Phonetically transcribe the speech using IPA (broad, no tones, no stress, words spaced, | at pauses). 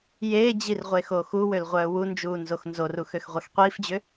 jeːd͡ʑirʁʷeːxo xuwølʁʷœː wund͡ʒuːnzox nzoruxøxʁʷɛx qʷiːfd͡ʑʏ